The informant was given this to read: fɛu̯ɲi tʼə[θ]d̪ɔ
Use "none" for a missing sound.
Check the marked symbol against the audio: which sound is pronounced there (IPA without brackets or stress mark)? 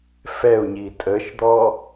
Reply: ʃ